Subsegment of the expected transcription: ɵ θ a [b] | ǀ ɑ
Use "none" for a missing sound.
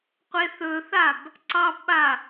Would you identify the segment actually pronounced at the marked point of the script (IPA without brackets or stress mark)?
b